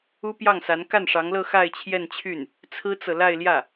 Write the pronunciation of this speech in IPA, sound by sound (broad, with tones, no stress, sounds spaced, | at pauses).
u˥ p j ɑ˥˩ ŋ s a˧˥ n k a˥˩ n ʂ ɑ˧˥ ŋ l ɤ˥˧ x a˥˧ ɪ̯ t͡ɕʰ j ɛ˥˧ n t͡ɕʰ y˥˩ n | t͡sʰ ɹ̩˥ t͡s ɤ˨ l a˥˧ ɪ̯ l j ä˥˩